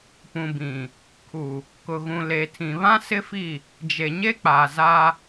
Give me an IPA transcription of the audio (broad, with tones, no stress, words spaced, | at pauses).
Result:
pũ˨bĩ˨ | kʰu˨ | kʊ˨ɣũ˨le˨tʰĩ˨ βã˦sɪ˦fi˦˨ | d͡ʒe˨ɲe˦ k͡paː˨za˦